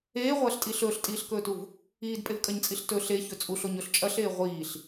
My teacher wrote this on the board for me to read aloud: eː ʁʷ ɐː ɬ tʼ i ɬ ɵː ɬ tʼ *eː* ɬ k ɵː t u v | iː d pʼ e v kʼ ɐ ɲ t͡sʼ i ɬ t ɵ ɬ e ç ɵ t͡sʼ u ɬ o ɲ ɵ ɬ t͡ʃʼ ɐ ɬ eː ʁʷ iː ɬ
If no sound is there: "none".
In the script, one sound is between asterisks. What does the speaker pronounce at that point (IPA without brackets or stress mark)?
iː